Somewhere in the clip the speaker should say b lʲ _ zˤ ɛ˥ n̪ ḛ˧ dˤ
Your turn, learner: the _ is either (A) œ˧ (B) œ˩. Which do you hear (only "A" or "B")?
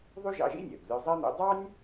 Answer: A